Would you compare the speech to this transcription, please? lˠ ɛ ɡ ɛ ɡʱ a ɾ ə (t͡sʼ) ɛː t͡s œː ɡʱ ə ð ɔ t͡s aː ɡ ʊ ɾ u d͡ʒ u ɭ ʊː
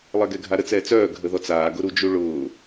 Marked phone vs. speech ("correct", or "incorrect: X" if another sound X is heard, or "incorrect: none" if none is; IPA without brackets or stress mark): incorrect: t͡s